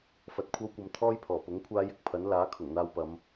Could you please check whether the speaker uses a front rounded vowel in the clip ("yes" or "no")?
no